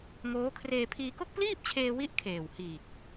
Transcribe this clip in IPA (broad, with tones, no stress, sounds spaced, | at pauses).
ŋ oː˦˥ kʰ r eː˧ pʰ iː˧ k o˥˩ k̚ p l iː˥˩ p̚ t͡ɕʰ eː˧ w i˦˥ ʔ kʰ eː˨˩ w h iː˨˩ k̚